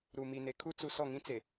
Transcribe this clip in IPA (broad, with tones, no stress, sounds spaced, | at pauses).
ɾ u˨ m i˨ n e˨ kʰ u˦ t͡s u˨ s ɔ˦˨ ŋ ĩ˦ t͡s e˨